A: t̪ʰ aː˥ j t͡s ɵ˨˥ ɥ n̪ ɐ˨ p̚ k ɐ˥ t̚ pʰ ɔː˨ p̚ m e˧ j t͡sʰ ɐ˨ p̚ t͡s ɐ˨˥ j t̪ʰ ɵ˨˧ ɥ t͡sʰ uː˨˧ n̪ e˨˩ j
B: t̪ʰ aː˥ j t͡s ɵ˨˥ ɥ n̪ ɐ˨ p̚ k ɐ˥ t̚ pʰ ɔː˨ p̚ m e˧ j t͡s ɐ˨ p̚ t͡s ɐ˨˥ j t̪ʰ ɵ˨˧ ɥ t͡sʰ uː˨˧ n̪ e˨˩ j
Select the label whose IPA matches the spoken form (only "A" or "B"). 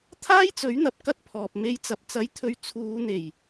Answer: B